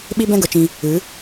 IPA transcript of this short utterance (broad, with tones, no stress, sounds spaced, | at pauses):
ɓ i˦ b ɛ̃˦ ɡ ə˨ t͡ʃ ĩ˧ | ɨ˨˦